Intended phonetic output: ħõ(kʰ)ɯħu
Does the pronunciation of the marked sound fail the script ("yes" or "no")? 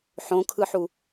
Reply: no